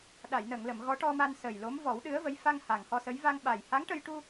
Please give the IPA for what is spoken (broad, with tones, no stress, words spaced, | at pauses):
ɗa˨˩˨jnə˨˩˨ŋlə˨˩˨m ɣɔ˧˥ʈɔ˧ma˧n sə˨˩jlo˧˥m vɔ˨˩˦wɗɨ˧˥ə̯və˧˥j fa˧ŋ ha˨˩ŋhɔ˧sə˧˥j va˧ŋ ɓa˨˩jha˧˥ŋʈə˧jʈu˧